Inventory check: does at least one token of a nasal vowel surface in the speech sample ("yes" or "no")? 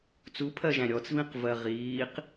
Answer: yes